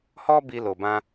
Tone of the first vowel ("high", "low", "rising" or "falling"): high